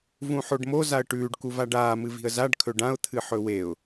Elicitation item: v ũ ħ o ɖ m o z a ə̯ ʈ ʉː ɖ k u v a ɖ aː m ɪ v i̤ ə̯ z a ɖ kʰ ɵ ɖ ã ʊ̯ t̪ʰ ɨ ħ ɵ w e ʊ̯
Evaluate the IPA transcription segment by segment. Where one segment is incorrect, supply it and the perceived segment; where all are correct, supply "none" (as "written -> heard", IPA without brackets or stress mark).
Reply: ɪ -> ɨ